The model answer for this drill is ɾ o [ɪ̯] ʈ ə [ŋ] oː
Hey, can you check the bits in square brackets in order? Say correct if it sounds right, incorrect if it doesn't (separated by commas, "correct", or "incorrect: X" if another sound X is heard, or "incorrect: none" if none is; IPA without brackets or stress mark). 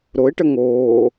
correct, correct